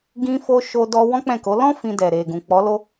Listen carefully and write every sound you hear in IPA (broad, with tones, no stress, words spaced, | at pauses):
ɡĩ˦fo˦ ʃo˦dɔ˦ wɔ̃˦k͡pɛ̃˦˨ko˨˦ lɔ̃˦ fĩ˧dɛ˨ ɾe˨ ɡũ˨k͡pɔ˨˦ lo˦